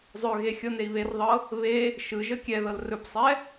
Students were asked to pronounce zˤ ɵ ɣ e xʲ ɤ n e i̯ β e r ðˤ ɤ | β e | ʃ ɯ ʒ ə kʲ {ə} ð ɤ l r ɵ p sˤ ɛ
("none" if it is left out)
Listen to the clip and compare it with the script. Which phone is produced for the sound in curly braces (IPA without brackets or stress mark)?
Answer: ɛ